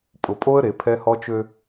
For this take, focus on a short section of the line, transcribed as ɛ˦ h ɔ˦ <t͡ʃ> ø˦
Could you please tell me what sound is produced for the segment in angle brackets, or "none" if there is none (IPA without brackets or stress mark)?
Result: t͡ʃ